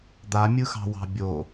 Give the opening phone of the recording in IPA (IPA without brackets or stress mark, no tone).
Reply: d̪